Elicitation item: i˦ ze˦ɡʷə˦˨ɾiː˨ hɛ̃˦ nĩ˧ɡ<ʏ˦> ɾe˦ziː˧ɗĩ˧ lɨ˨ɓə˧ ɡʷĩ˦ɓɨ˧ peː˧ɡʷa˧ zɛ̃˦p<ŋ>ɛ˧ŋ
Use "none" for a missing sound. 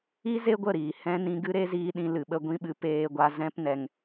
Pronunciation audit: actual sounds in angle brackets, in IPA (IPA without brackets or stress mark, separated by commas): ɨ˦, n